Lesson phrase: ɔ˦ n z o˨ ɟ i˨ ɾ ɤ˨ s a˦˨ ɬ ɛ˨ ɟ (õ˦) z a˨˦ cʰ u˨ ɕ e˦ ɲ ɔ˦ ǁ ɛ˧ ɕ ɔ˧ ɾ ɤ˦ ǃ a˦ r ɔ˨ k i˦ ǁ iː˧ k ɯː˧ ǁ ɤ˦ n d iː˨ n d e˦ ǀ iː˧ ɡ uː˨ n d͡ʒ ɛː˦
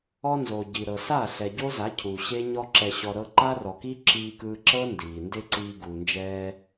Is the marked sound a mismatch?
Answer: yes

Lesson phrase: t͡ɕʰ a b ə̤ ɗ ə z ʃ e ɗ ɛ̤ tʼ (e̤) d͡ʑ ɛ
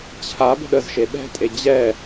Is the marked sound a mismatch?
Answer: yes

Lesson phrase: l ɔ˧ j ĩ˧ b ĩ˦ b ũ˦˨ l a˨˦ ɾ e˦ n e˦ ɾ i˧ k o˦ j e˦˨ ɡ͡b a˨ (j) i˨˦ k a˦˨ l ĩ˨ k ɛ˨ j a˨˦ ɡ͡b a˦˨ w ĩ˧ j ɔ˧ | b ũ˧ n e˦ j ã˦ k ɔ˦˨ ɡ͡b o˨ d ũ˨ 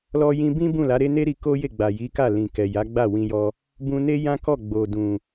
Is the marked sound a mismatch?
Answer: no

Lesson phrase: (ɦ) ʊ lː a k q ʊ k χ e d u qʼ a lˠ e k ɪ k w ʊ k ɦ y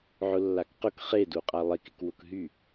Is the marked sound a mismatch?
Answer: yes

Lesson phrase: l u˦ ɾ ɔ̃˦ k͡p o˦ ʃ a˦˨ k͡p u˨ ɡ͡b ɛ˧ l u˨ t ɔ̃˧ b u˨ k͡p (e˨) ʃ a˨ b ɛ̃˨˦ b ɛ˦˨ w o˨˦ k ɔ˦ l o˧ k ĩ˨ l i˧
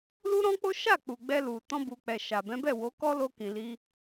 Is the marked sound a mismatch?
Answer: yes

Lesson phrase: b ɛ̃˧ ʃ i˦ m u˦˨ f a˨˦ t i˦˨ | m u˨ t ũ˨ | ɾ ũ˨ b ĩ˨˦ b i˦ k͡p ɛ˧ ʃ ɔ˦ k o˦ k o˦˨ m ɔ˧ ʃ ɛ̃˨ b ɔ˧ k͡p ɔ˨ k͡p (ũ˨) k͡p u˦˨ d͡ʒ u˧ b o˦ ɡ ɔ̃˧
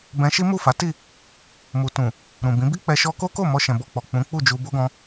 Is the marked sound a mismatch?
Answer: yes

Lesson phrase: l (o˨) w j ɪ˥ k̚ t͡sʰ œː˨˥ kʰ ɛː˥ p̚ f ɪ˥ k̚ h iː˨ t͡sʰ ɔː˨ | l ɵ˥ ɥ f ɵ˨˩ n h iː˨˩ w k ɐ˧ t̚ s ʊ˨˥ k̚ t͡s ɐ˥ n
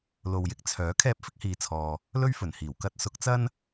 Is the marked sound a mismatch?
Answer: no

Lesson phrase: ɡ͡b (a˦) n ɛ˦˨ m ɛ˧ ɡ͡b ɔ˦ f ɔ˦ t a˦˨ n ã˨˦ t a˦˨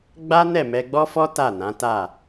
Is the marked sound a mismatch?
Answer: no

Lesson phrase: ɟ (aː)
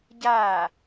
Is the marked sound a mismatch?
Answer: no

